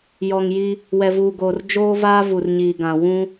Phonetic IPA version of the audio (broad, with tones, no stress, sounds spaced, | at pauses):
j ɔ˨ ŋ j i˦ | w ɛ˨ v uː˨ ɡ oː˨ r d͡ʒ oː˦ v aː˦ v u˨ r ɲ iː˨ ɡ ã˨ w ũ˦